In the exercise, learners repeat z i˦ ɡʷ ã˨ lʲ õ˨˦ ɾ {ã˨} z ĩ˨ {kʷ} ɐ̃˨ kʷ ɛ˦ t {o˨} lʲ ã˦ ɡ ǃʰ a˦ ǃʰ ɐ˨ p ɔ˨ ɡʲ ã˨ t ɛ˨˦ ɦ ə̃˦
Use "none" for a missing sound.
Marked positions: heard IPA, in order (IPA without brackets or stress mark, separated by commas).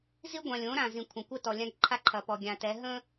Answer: ã˨, kʷʰ, ɔ˨